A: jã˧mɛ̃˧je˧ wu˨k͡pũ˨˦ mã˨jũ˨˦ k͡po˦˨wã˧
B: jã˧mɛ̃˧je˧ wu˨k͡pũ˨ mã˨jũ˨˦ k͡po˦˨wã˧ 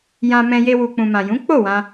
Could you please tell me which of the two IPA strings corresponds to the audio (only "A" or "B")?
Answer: B